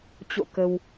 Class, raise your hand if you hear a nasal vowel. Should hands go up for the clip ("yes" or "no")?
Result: no